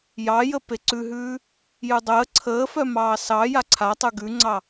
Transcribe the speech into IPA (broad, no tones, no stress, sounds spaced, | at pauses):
j ɑ j ə p e ǀ ʉ ɦ ʉː | j ʉ dˤ əː ǀʰ əː f œ m ɑː s ɑ j a ǀʰ a tˤ ʉ ɡ ʉ ŋ͡ǀ ɑ